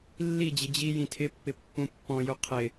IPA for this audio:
lː i d͡ʑ ɪ d͡ʑ i j ĩ tʰ ɪ pː ɪ pː ũ pː ɔ̃ j u qʰ ɪ

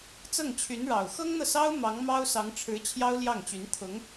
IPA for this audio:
t͡s ɤ˥˩ ŋ t͡ɕʰ y˧˥ n ɻ ɑ˨˩ ʊ̯ x ɤ˥ ŋ n̪ ɤ˨ s ɑ˥ ʊ̯ m ɑ˧˥ ŋ m ɑ˥ ʊ̯ s ɑ˧˥ ŋ ʈ͡ʂʰ ɻ̩˧˥ t͡ɕʰ j ɑ˥ ʊ̯ l j ɑ˥˩ ŋ t͡ɕ y˧˥ n t̪ʰ ʊ˧˥ ŋ

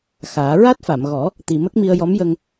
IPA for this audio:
x aː˨˩˦ ɹ a˦˥ t̚ f a˨˩˨ m ɣ ɔ˨˩˦ | t̪ i˨˩ m ə˦˥ k̚ m i˧ ə̯ j ɔ˧˥ m j ə˧ ŋ

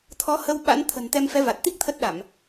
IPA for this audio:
t̪ʰ ɔ˨˦ h ə˧ w ɓ a̰˧˥ n t̪ʰ ə̤˨˩ n t̪ ɛ˧ m f ɛ˨˦ v a˨˩ t̚ t̪ i˦˥ k̚ t̪ʰ ə˦˥ t̚ ɗ a˧˩˨ m

